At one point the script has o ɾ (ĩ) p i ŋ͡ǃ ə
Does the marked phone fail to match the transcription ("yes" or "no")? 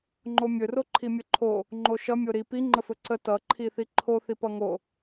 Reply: yes